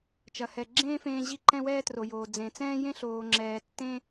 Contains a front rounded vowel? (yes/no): no